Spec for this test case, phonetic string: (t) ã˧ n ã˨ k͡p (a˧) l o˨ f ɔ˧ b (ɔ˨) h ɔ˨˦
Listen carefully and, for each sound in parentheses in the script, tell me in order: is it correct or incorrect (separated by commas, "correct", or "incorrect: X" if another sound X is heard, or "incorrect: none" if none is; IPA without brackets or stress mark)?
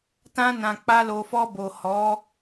correct, correct, incorrect: o˨